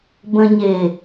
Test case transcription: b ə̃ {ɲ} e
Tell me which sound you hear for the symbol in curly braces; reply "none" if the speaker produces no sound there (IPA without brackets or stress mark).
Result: ɲ